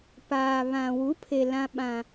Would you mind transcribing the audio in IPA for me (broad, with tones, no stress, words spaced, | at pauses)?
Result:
paː˨βã˨ wu˨˦pʰe˨ lã˦ɓã˦